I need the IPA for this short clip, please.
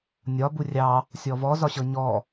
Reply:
nʲ ɒ b u rʲ ɑ | sʲ ɔ v ɔ z ɒ ɕ ɤ ɲ ɔ

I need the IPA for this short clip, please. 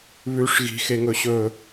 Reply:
β ʉ ʂ ɣ i̤ x e ŋ ɵ ɕ ɵ

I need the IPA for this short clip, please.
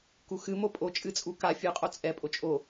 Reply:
k u x ɨ m o pʼ o t͡ʃʼ ɨ t͡sʼ u k a fʲ ɨ qʼ o t͡sʼ ɛ pʼ o t͡ʃʼ o

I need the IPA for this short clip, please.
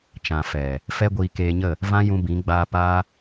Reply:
t͡ʃ ã˨ f ɛ˨ | f ɛ˦ ɡʷ iː˧ k eː˧ ɲ ə˦˨ | v ã˦ j ũ˧ b ĩ˨˦ ɡ͡b aː˧ p aː˦

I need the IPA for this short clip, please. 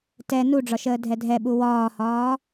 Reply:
t ɛ n u ɖ͡ʐ ɒ ʃ əː dʱ ɛ dʱ ɛ ɓ u w ɒː h ɒː

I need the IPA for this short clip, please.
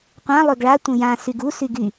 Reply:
qʷ ã lˠ ø ɡ ɭ a tʷ ə̃ j ã s y ɡ u s y ɡ y

